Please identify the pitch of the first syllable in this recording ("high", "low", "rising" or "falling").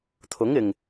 rising